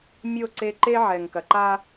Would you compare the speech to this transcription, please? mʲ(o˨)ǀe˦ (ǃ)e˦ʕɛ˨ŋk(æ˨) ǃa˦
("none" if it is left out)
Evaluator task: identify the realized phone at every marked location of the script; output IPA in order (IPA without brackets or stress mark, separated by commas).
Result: o˦˨, ǃ, ɐ˨